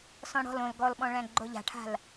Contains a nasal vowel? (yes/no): yes